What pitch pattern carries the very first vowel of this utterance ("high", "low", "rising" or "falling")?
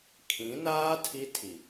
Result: rising